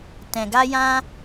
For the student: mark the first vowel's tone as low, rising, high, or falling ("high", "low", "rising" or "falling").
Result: low